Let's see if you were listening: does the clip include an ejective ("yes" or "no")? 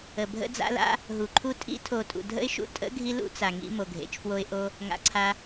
yes